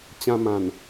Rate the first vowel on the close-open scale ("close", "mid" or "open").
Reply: open